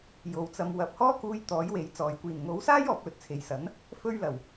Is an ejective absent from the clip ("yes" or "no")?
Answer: yes